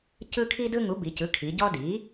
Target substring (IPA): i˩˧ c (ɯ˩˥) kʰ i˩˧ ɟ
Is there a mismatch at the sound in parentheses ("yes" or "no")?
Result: no